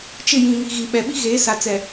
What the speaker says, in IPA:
t͡ʃ ɪ˦˨ j ĩ˨ ŋ i˨ ɣ i˨ ɓ ɛ˨ ɓ i˦ ɣ eː˨˦ s a˨ t͡s ɛ˨

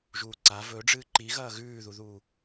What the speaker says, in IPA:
ʒ uː ǀ a v ɵ ɖ͡ʐ ɨː ǃ i ɣ ɐː ɣ ʉː ð u ð uː

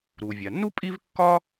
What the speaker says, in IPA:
ɾ u˩ vʲ a˩ nː u˥ pʼ i˥ v kː ɒ˥

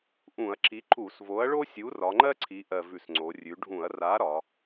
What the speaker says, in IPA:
ʔ ũ˧˩˧ ɐ̯ ǁ i˨˥ ǃ u˧˩˧ s v o˨˥ ɐ̯ ɭ o˥ sʲ u˨˥ r ɒ˩˧ ŋ͡ǃ ɜ˥ ǀʰ i˩˧ ʔ ɜ˨˩ v ʉ˧˩˧ s ŋ͡ǀ o˩˧ rʲ ʉ˩˧ ɖʱ ũ˧˩˧ ɐ̯ r a˨˥ ɾ ɒ˩˧

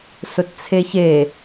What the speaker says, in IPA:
s ʊ t t͡sʰ e ç e

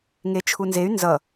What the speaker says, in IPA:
ŋ e t͡ʃʰ u n z e y̯ n z ʌ

